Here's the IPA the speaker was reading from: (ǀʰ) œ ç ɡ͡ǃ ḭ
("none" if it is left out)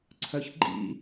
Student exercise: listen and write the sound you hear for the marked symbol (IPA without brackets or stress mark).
ǀʰ